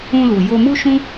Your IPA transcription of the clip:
ũ˧ l u˨ j o˧ m u˦ ʃ ũ˦

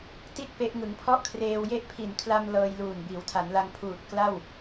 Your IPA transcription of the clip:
t i˦˥ t̚ p e˦˥ ʔ ŋ ɯ˩˦ ŋ pʰ ɔ˥˩ ʔ kʰ r eː˧ w j e˥˩ ʔ pʰ i˨˩ n kʰ l a˧ m l ɤː˧ j l uː˨˩ n b iː˩˦ w tʰ a˩˦ n l a˧ ŋ pʰ uː˨˩ t̚ k l a˥˩ w

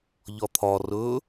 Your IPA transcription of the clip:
ʎ ɒ t̪ʰ ɒ r ɵː

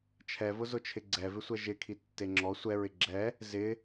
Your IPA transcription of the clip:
t͡ʃʰ ɛ v ʊ z ʊ t͡ʃʰ ɪ ɡ͡ǀ ɛ v ɪ sʷ ɛ ʒ ɪ kʰ i tː e ŋ͡ǁ ɔ sʷ ɛ ɹ ɪ ɡ͡ǁ ɛ | z ɪ

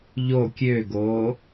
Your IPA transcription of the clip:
ʎ o kʲ ø ɡ oː

